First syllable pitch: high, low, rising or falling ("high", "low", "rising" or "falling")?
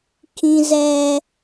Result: high